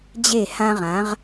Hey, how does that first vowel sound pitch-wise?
falling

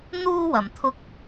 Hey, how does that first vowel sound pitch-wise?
high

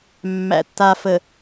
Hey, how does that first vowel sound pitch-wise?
low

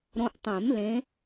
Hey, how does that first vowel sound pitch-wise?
rising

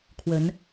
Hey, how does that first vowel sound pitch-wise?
rising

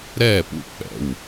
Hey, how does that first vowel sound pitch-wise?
falling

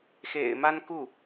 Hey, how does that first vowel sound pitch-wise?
low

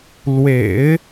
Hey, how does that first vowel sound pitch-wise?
low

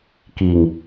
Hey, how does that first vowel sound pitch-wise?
low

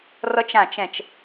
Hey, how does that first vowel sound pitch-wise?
high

